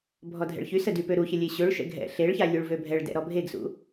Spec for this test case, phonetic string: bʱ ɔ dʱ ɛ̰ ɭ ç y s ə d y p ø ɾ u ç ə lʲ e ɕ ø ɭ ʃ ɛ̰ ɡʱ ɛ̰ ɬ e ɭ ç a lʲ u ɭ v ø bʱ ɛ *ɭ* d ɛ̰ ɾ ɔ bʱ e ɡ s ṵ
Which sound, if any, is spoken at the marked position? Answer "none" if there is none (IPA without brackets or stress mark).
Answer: ɭ